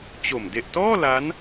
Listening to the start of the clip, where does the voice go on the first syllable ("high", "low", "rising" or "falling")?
low